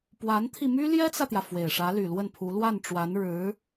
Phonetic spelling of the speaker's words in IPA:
p w a˧˥ n t̪ʰ i˧ m y˥ l j ɛ˥ t͡s ä˨ t̪ j ä˩ f w e˨˩ ɪ̯ ʂ ä˧˥ l y˨˩ l w ə˥˩ n pʰ u˧˥ l w a˥˩ n ʈ͡ʂ w a˧˥ n ɻ ɻ̩˧˥

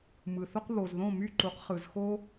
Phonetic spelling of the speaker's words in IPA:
m ɯ˩ θ o˥ q β o˩ z ð õ˥˩ m y˥˩ ǃ u˩˥ q χ ɯ˩ z x o˥

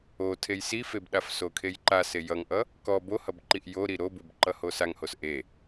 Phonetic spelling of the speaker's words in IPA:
o tʰ e j s i f e b ɗ a f s o kʰ e j ǃ a s e j ʌ ŋ ʔ ʌ | k ɔ b o h ʌ b ǃ i ʔ j o ɾ i ɾ o b u b ǃ ʌ h o s a ŋ h o s ʔ e

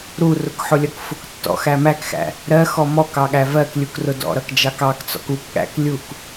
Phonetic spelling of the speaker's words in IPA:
ɾ u r ʊ k ħ ʊ lʲ ʌ k f ʊ k tː ɔ̰ x æ m æ k x æ̰ | ɾ ɜ x ɔ m ɔ k ɑ ɠ æ v ɜ k lʲ u k r ʊ d ɔ̰ ɾ ʌ k d͡ʒ ɑ k ɑ k t͡s ɔ̰ k u k ɠ æ̰ k lʲ u k

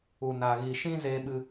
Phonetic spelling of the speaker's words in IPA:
u˧ n a˧ ɣ iː˧ ʃ ĩ˦ z eː˦ ɓ ɨ˦

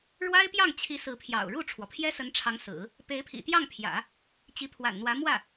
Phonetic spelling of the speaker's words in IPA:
ɻ w a˥ ɪ̯ p j ɑ˥˩ ŋ t͡ɕʰ i˧˥ s ɹ̩˧˥ pʰ j ɑ̰˨˩ ʊ̯ ɻ u˥˩ ʈ͡ʂʰ w ɔ˩ pʰ j ɛ˥ s ə˧˥ n ʈ͡ʂʰ ɑ˧˥ ŋ s ɹ̩˨˩˦ | p e˧˥ ɪ̯ pʰ ḭ˨˩ t̪ j ɑ˥˩ ŋ pʰ j ä̰˨˩˦ | t͡ɕ i˧˥ pʰ w a̰˨˩ n n̪ w ä˧˥ m w ä˥˩

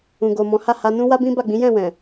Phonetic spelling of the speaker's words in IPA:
ũ˨ ɡ o˨ m ɔ̃˨˦ h a˦˨ h a˧ n ũ˦ w a˦ b ĩ˦ b a˦˨ ɡ͡b ĩ˨˦ j ɛ̃˦˨ w ɛ̃˨

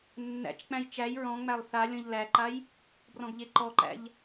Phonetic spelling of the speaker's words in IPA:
nː æ̰ t͡ʃ k͡p æ̃ j t͡ʃ æ j ɹ ɔ̃ ŋ͡m æ lˠ θ a lʲ ɔ̃ ʎ l æ ǃ a j | b r ɔ̃ ɡ ʎ e ǃ ɔ ǃ æ̰ ʎ

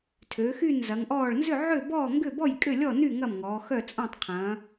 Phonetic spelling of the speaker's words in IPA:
tʰ øː˩˧ x y˥˨ n z ɐ˩˧ ŋ ʔ ɔː˥˨ ɭ n z ʏ˥˨ ʕ ø˥˨ b ɔː˥˨ ŋ ɡ ʏ˥˨ b ɔ˥˨ j kʼ ʏ˥˨ lʲ ɔ˥˨ n y˥˨ ŋ ɐ˥˨ m ŋ ɔː˩˧ x œ˥˨ t͡sʼ ɔ̃˥˨ tˤ qʰ ɐ̃˩˧

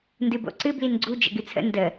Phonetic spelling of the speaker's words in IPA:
n d ɨ b o̰ ǀ ɨ b l i n ɡ͡ǀ u d͡ʒ ə̰ ɡ ɨ t͡sʰ ə̰ n d ə

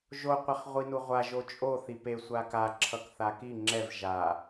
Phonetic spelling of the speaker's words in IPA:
ʒ o qʷ a χ ʁʷ i n u ʁʷ a ʒ o t͡ʃʼ o θ i p e sʷ a k a ǁʰ ʌ k θ a k i ŋ͡ǁ ɛ v ʒ a

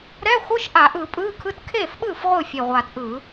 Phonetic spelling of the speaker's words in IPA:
ɾ ɛ˧˥˧ χʷ ɯ˧˥˧ ʃ ʔ a˧˩˧ ʔ ɯ˧˩˧ pʼ ɯː˧˥˧ kʰ ɯ˧˥˧ t kʰ eː˥˩ f ɓ ɯː˥˩ f ʁʷ ɯ˥˩ fʲ e˨˩ ʁʷ aː˨˩ t ʔ ɯː˧˩˧

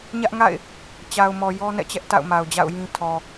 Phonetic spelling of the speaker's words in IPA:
ɲ ä˦ ʔ ŋ a̰˦˨ ɪ̯ | t͡ɕ a˨ ʊ̯ m ɔ˨ j ɔ˦ n ɛ̰˦˨ t͡ɕ ɛ˦ ʔ t a̰˦˨ ʊ̯ m a˨ ʊ̯ d͡ʑ a̰˦˨ ʊ̯ j ĩ˦ tʰ ɔ˨

